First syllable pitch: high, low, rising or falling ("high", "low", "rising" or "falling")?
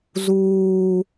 high